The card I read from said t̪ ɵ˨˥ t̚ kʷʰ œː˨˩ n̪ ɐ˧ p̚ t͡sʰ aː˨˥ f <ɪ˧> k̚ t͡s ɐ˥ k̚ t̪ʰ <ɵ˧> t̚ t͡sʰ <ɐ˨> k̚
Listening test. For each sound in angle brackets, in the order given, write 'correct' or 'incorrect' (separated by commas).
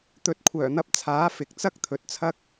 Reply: incorrect, incorrect, incorrect